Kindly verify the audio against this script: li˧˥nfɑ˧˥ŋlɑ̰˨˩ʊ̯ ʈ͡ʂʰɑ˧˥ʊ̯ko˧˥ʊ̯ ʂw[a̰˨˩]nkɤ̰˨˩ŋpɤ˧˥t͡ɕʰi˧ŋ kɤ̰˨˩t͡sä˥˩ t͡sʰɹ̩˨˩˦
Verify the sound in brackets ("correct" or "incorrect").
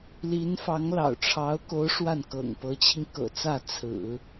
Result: incorrect